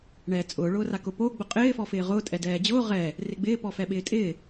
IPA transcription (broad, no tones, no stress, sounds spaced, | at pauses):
ɳ ɛː t͡sʼ ʊː ɭ ʊː r a k ʊ p o ɡ͡b ʊ qʼ ɪː f ɔ f ɪː ʁ ʊː tʼ ɛ d ɛː d͡ʑ ʊː ʁ ɛ | r ɪ ɡ͡b ɪː p ɔ f ɛ ɓ ɪː tʼ ɪː